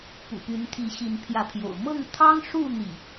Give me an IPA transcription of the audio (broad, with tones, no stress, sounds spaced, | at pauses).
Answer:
p ṵ˨˩ p y˨˦ n t̪ʰ i˨˦ ɕ i˨˦ n pʰ j ä˨˦ pʰ j o̰˨˩ ʊ̯ m ɤ˥˨ ŋ t̪ʰ ɑ˦ ŋ ʂ u˥˨ n̪ ḭ˨˩